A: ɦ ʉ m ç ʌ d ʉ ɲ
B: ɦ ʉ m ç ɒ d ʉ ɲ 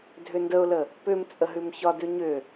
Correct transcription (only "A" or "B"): B